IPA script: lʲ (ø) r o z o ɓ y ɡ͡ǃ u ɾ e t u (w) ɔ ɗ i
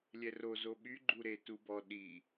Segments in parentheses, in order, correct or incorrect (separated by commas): incorrect, incorrect